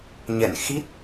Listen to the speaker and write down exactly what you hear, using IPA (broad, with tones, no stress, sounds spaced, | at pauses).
ɲ ɛ̰˧˨ n x i˦˥ t̚